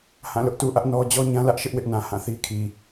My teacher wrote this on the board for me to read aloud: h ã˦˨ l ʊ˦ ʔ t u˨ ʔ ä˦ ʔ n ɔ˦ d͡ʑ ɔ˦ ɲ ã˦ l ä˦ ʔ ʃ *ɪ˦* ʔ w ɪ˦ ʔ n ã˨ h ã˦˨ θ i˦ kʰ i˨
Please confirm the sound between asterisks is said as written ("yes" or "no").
yes